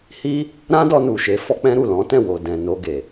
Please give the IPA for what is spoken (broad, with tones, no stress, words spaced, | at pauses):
hi˦ | ɾã˦dɔ˧ nu˨ʃe˨˦ fɔ˦k͡pɛ̃˦ɾu˦˨ lɔ̃˨˦ tɛ̃˦˨wo˨ dɛ̃˨no˧ ɡe˨